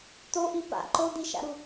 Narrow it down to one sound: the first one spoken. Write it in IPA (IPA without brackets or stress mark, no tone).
t̪